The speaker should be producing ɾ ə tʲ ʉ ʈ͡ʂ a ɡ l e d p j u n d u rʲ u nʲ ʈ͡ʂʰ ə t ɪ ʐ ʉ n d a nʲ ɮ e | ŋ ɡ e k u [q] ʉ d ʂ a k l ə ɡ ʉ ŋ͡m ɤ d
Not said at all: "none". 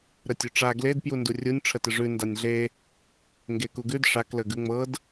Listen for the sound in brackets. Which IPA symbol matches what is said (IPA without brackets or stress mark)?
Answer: ɡ